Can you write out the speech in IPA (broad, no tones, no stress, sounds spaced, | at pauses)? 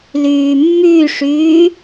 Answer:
l yː mː y ʂ yː